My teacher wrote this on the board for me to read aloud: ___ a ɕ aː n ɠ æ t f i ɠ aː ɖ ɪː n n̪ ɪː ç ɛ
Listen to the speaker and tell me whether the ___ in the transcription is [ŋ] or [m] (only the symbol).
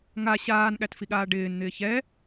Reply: ŋ